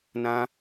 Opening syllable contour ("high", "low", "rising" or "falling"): high